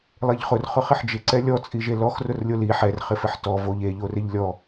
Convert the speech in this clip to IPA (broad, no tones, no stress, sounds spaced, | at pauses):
lˠ e ʎ χ ʊ r χ ʊ χ ɪ ħ d͡ʒ ɪ ǀ ɛ lʲ ɔ t͡sʼ i ʒ e l ɔ x r ʊ r lʲ o l i ħ ɛ r χ ɪ f ɪ ħ t ɔ v o ʎ e ʎ o r ɪ ʎ lʲ ɔ